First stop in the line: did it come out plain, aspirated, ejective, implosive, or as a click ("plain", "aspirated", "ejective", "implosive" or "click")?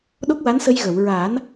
implosive